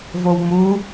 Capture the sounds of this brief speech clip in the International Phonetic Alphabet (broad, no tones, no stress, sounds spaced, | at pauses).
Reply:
v o w m u